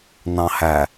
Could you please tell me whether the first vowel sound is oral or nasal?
nasal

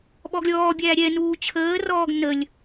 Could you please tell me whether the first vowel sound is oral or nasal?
oral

